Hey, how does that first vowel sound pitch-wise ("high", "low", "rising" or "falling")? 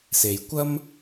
low